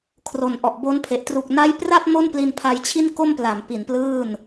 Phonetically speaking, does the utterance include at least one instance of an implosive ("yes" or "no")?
no